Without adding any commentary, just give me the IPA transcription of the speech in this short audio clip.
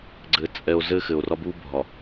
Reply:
ɡ͡ǀ ɘː˨ t͡sʼ ɛ˨ o̯ z ɘː˦ x ɘ˨ o̯ r ɒ˦ b uː˦ bʱ ɒ˨

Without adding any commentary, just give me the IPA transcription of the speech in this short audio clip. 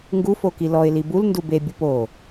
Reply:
ŋ ɡ u f o k i l ɔ ɪ̯ l i b u l n d u b e bʲ u p o

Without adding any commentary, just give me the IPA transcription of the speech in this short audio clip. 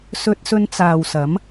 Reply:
s ɵ˧ t̚ s ɵ˧ n t͡s aː˨ w s ɐ˨˥ m

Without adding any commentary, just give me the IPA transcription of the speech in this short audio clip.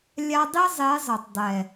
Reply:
lʲ a˦ dˤ i˦ zˤ e˨˦ zˤ ɯ˨ tˤ dˤ ɛ˨

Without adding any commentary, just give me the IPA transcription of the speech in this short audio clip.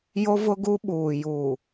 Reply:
j o˦ v ʊ˦ ɡ u˦ ɓ uː˨ j uː˨

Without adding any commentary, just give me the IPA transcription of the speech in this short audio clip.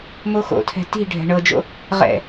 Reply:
m o x o̰ tʰ ɛ̤ t i̤ ɖʱ ɛ̤ ɳ ɤ d͡ʒ o̰ | ʁ ɛ̰

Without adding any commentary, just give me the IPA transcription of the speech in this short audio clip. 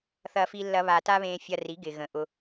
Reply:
θ ɐ˧ f i˧ lː ɐ˧ β a˧ t a˦ β ẽ˧ fʲ ɐ˧ r i˨˦ ɡ ɪ˨ ɣ ə̃˨ ʔ ʊ˧

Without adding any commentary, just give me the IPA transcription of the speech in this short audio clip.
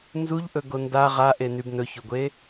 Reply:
n z u ʎ ʔ ɵ ɡ o n d a ʁ a ʔ e n y b n ɵ ç o ɡʷ e

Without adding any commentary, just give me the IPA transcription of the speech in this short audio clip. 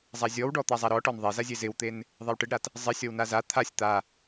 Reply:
zˤ a zʲ ɔ w ɖ ɔ t̪ a zˤ a ɾ ɔ ʈ ɔ n ðˤ e z a zʲ e z ɪ w t̪ e n | ðˤ e w ʈ ɪ ɖ ɾ a t | zˤ ɪ sʲ ɔ w n a z a t̪ʰ a sʲ t̪ a

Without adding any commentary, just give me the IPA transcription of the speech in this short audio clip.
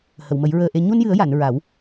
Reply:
h ə˨˩˨ w m ə˨˩˦ j ɹ əː˧ ʔ e˧ ɲ u˧ n j ɨ˨˩˦ ə̯ j a˨˩˨ n ɹ a˨˩˦ w

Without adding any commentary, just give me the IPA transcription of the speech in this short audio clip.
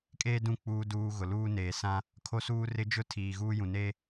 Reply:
kʼ eː˦ d ũ˦˨ k͡p uː˦ d uː˦ ɣ ʊ˨ l uː˦ n eː˨ s ã˦ | kʰ o˦ s uː˦ r ɪ˦ d͡ʒ ʊ˦ tʰ iː˨ ɣ uː˦ j ũ˨ n eː˦

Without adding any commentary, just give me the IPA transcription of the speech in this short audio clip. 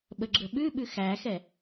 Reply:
ɓ ə ɡ͡ǁ ə ɓ ʉ ɓ ʉ x æ x ɛ

